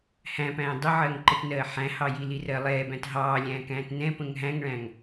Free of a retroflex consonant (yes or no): no